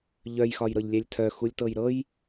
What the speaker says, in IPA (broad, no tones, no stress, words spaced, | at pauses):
ʎœjxɒj ɾɤʎlʲælʲtʰœ xulʲtɤjɾɤj